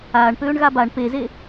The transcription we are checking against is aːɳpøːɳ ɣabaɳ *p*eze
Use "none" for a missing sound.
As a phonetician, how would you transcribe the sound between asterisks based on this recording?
p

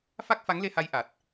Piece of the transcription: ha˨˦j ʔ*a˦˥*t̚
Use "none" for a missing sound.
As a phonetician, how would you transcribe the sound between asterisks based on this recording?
a˨˩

